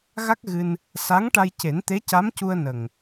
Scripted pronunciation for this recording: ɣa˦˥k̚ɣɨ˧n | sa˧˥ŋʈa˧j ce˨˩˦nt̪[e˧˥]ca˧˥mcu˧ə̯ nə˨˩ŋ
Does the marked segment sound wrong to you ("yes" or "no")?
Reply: no